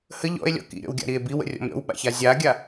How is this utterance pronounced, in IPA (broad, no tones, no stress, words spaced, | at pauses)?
hə ʎɔ̰e̯lʲɔ̰ kḭɾʲɔ̰wɡʲa̰ɾie̯ biwə̰rʲɔ̰m ɾʲɔ̰wɓa̰ça zʲaɡʲa